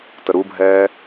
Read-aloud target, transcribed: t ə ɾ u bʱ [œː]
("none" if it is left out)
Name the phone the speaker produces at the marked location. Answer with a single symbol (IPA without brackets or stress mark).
ɛː